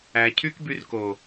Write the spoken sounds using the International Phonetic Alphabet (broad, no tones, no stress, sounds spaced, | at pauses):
æ cʰ y k b y r k o